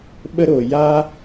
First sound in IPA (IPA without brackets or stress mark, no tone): ɓ